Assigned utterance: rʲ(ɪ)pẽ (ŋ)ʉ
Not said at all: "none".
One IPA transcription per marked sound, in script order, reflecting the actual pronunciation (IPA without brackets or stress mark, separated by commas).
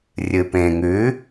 ɨ, ŋ